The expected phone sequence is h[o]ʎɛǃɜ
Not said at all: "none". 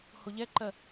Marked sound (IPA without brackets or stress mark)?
o